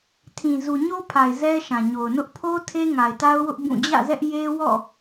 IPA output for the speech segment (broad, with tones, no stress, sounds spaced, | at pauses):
tʰ ĩ˨ z u˨ ɲ o˦ pʰ a˨ ɪ̯ z ɛ˦ ʃ ã˨ ɲ o˨ ʊ̯ n ʊ˦ ʔ pʰ o˦ tʰ e˦ ŋ a˨ ɪ̯ t a˦ ʊ̯ w ʊ˦ ʔ b ũ˦˨ d͡ʑ ä̰˦˨ z ɛ˦ ʔ j e˦ w ɔ̰˦˨